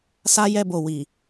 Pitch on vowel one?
high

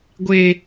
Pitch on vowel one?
low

